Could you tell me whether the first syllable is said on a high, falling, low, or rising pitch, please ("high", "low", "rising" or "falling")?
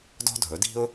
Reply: high